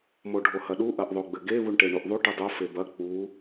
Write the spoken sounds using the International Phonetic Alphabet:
m o ɖʱ o h ɐ ɗ u ʔ ɐ ʔ ðˤ o ɡ͡b ɘ ɡ e β u ɳ ʈ e ɳ u ʔ ðˤ u ʈ ɨ dˤ o f e b ɐ k͡p u

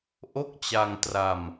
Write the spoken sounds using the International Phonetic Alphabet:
ʔ o˥˩ k̚ t͡ɕ a˧ ŋ t r a˧ m

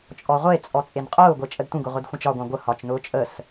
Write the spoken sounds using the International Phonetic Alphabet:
t͡ʃʼ ɔ ʁʷ e t͡sʼ ɔ t͡sʼ e n qʼ ʊː ɡʷ e t͡ʃʼ ə d tʷ ə̃ ɡ ʊ ʁʷ e d xʷ ə̃ t͡ʃ ɒ ɡʷ ɑ̃ ɡʷ ə h ɒ t͡ʃ n ʊː t͡ʃʼ ə s

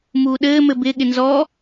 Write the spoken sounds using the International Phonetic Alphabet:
m uː ɗ ɘː m ɘ b ɪ ɠ ɪ n z ɔː

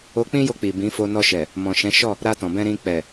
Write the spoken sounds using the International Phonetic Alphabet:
o˧ k͡p ĩ˦ j o˧ k͡p i˨ b ĩ˨˦ f o˧ n ɔ˧ ʃ ɛ˨ | m ɔ̃˨ ʃ ɛ̃˨˦ ʃ ɔ˦˨ | ɾ a˧ t ɔ̃˨ b ɛ̃˧ ɾ ĩ˧ k͡p ɛ˨

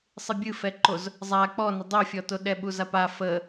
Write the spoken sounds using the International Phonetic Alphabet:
sˤ ɨ bʲ ɨ f ɛ ǃ o z | zˤ a k͡p ɔ n ə dˤ o fʲ ɔ t o ɗ ɛ ɓ u z a p a f ə

